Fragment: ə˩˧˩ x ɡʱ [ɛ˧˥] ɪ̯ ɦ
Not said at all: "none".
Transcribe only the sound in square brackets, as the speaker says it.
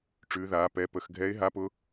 ɛ˧˥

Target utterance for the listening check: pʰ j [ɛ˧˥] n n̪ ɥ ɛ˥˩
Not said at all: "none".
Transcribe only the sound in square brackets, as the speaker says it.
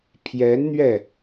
ɛ˧˥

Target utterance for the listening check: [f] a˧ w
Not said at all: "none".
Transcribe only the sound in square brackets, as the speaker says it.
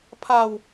pʰ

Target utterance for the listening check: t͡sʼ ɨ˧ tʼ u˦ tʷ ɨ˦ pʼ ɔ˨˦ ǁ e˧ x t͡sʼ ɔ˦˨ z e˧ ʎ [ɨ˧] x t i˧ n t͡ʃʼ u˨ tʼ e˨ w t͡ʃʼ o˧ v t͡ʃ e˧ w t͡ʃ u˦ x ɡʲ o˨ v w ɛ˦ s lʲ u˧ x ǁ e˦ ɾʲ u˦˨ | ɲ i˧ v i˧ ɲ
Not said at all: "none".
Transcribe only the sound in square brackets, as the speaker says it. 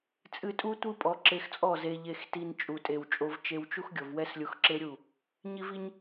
e˧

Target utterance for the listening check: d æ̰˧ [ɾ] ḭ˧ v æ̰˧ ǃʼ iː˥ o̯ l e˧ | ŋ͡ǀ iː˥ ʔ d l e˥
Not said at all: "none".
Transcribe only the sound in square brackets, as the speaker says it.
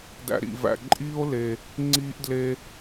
ɾ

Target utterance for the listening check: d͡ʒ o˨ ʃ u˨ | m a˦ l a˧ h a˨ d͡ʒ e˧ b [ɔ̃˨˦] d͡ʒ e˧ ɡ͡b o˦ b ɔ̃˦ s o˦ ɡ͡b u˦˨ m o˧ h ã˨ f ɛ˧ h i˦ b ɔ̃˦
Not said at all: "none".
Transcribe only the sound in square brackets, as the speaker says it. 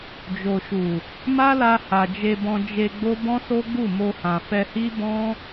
ɔ̃˧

